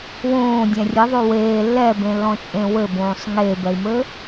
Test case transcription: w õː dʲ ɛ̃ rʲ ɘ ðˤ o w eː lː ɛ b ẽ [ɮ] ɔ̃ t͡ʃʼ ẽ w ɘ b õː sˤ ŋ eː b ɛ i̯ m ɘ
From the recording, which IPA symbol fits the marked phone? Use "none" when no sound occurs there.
lː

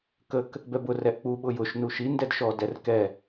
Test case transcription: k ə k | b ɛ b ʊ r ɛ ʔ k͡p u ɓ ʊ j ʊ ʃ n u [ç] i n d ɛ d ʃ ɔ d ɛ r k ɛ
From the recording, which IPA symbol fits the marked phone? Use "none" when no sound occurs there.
ʃ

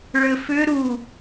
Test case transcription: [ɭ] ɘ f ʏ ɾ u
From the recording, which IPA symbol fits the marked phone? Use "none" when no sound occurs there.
ɭ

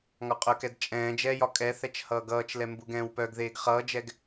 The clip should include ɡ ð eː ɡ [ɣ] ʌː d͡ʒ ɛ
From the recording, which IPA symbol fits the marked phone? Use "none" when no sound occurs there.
χ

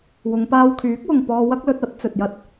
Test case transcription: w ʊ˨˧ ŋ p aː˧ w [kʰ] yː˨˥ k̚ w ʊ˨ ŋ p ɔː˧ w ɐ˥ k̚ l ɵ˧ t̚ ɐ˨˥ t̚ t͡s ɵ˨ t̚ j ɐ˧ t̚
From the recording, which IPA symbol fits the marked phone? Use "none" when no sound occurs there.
kʰ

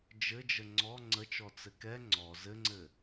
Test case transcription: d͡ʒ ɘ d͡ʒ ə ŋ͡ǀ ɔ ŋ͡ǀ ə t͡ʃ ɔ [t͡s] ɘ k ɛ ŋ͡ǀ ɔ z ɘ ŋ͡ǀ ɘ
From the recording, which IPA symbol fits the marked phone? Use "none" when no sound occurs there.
t͡s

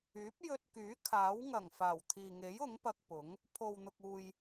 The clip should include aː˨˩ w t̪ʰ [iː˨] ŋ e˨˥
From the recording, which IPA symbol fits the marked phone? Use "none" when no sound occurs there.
iː˨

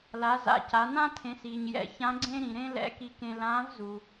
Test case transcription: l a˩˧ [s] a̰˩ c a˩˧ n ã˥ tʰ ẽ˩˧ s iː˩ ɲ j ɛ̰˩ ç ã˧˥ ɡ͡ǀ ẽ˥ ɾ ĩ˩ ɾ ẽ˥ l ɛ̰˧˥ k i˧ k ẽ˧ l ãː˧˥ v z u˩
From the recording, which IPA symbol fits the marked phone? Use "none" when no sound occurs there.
z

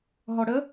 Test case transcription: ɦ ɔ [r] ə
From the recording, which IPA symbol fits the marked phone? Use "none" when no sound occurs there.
ɽ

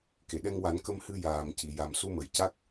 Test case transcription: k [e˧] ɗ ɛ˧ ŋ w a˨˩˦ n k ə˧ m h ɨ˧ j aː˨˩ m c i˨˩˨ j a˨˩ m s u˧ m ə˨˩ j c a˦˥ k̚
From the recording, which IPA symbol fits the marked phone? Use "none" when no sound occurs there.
e˨˩˨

